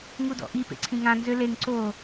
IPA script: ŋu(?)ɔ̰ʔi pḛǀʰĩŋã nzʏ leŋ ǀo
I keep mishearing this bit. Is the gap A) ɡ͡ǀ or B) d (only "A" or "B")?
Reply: B